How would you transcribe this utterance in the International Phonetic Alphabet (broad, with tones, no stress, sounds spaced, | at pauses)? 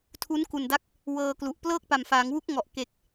tʰ u˦˥ n k u˨˩ n d a˦˥ k̚ | w ɤː˧ k l u˨˩ ʔ p l ɤː˥˩ k̚ p a˨˩ m f aː˩˦ ŋ w u˦˥ k̚ ŋ ɔ˨˩ ʔ k e˨˩ k̚